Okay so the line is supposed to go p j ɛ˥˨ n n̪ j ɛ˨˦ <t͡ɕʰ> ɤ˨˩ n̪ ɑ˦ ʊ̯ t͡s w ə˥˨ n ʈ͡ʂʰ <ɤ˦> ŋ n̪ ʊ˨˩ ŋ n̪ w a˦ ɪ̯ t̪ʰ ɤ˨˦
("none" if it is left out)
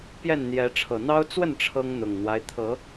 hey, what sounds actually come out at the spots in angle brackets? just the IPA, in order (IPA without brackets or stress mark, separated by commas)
ʈ͡ʂʰ, ɤ˦